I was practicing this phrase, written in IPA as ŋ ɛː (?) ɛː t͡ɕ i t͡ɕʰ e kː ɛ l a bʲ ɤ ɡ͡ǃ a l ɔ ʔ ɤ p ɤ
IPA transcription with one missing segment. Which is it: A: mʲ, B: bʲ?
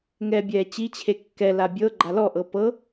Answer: B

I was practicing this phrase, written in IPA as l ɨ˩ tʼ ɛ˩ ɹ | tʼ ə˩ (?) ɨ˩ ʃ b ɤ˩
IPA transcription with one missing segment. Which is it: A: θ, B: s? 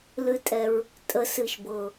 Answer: B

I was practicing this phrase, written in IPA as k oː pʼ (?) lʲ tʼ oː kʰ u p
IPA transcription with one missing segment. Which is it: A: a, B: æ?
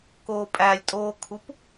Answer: B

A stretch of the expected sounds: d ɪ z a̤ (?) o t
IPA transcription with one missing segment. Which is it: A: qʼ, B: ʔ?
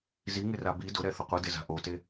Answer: B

